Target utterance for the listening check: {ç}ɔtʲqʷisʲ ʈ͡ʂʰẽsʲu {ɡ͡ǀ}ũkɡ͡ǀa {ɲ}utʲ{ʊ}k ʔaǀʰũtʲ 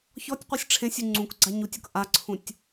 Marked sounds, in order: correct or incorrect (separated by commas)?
correct, incorrect, correct, correct